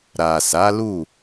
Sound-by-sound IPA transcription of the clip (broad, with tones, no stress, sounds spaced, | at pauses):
ɾ a˨ s a˨˦ l u˦˨